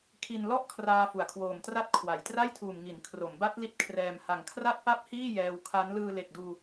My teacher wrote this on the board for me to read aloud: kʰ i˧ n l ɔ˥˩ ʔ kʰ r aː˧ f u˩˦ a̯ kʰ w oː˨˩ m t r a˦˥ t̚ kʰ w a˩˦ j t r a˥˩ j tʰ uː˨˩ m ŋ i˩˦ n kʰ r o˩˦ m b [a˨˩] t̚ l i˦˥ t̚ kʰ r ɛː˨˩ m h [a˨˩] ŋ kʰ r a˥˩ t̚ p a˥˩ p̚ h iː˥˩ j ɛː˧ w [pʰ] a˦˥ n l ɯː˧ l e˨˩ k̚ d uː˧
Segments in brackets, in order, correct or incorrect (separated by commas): incorrect, correct, incorrect